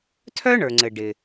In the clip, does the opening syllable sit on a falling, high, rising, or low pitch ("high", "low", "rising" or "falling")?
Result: high